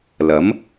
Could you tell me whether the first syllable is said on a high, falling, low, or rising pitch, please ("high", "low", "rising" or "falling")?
rising